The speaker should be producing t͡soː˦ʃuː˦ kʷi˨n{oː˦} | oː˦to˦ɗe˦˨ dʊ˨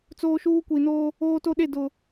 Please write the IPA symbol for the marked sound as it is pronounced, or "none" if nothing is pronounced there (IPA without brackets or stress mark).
oː˦